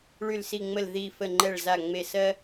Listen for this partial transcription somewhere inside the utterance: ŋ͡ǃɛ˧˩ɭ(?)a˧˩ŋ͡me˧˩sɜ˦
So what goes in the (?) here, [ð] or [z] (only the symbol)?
z